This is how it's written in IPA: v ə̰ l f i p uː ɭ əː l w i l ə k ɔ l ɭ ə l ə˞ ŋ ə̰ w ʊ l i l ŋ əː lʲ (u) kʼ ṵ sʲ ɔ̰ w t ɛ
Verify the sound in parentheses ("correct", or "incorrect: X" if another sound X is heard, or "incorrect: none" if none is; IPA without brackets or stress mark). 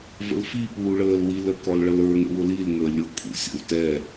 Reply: incorrect: o